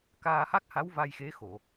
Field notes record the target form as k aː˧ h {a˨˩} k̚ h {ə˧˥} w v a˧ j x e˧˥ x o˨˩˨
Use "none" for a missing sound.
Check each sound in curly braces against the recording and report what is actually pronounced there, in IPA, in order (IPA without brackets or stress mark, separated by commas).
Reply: a˦˥, a˧˥